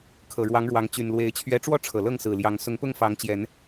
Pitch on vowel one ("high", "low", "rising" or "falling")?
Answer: low